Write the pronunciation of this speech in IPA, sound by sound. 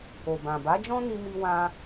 o˨ b ã˨ b a˨˦ d͡ʒ ɔ̃˦ n i˧ m i˦ w ã˦

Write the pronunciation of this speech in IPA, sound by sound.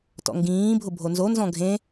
t ɔ̰ ŋ ɡ ĩː bʱ ʊ bʱ o n z o n z ɔ̃ ɡʱ ẽ

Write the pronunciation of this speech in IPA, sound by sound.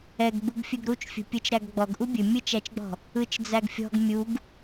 ɛ ɡ ɡ͡b u ɡ fʲ ɵ ɡ ɾ u t͡ʃ fʲ ṳ pʲ ɯ t͡ʃ ɾ æ ɡ ɡ͡b ɔ ɡ ʔ u bʲ ɵ mʲ ɯ t͡ʃ æ t͡ʃ ɡ͡b ɔ̤ | ɯ t͡ʃ d͡z æ ɡ fʲ ɔ̤ ɡ mʲ u ɡ

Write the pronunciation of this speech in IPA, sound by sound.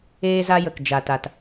eː˧ z a˧ j ə˨ k d͡ʒ a˨ t a˨ t

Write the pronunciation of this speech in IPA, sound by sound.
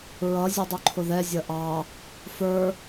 ɹ ʌ zʲ ʌ dˤ u ǃʰ ʊ ð ɛ zʲ ʌ ʔ ɑ | f ə˞

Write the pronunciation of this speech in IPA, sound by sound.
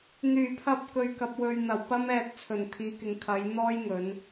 n̪ yː˨˩ pʰ ɐ˧ p̚ k ɵ˨ ɥ k ɐ˨ p̚ w ɵ˨ ɥ n̪ ɐ˨˩ w p ɐ˧ m ɛː˨ t̚ t͡sʰ ɵ˨˩ n t̪ʰ iː˨˧ k ɪ˨˧ ŋ kʰ ɐ˨˧ j n̪ ɔː˥ j ŋ ɵ˨˧ n

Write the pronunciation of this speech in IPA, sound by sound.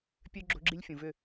pʲ ø˦ ɡ͡ǁ o̤˦ ɡ͡ǁ i˦ lʲ fʲ ũ˨ v ʏ˦˨

